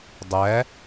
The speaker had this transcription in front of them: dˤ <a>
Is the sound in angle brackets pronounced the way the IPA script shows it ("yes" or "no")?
no